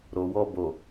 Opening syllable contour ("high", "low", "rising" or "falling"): low